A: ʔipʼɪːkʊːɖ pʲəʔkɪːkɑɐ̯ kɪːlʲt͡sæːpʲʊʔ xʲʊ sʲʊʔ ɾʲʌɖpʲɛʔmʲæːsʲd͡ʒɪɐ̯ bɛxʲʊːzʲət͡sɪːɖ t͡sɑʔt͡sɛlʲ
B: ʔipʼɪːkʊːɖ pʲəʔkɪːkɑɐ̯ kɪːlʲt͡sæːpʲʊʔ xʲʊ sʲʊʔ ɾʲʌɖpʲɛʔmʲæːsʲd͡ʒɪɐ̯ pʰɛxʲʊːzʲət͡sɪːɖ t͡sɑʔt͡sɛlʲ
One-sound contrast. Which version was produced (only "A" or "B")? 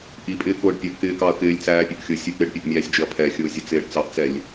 B